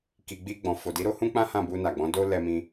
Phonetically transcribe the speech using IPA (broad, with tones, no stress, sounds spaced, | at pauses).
k i˨ ɡ͡b i˧ ɡ͡b ɔ̃˨ f o˨ d i˨˦ ɾ o˦ h ũ˦ k͡p ã˦ h ã˦˨ b u˧ n a˨ ɡ͡b ɔ̃˨˦ d o˦ l ɛ˧ m ĩ˧